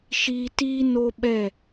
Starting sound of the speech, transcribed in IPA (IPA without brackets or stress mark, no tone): ʃ